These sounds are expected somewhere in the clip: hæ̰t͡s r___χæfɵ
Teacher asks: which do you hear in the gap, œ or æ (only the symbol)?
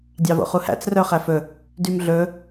œ